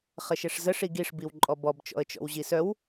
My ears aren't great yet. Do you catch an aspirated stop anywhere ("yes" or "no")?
no